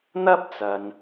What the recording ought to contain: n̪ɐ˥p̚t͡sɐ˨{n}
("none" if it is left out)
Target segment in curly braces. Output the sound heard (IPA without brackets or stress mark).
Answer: n